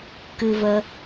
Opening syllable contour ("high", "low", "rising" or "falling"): high